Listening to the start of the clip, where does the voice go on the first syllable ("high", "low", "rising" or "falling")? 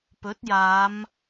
rising